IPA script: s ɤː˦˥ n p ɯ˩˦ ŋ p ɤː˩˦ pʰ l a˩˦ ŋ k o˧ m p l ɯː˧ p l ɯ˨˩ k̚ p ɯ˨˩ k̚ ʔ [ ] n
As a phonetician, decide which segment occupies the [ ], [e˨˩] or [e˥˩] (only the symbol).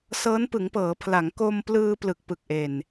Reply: e˨˩